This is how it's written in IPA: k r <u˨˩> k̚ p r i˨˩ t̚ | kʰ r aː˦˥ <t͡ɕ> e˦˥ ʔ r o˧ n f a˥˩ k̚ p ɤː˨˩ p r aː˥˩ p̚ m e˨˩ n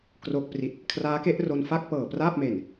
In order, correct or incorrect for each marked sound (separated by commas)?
incorrect, incorrect